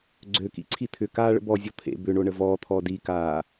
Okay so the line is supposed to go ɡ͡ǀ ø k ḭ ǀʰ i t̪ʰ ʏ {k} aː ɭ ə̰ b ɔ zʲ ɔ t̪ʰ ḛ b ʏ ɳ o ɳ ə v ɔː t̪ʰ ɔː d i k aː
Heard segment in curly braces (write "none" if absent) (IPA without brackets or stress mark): k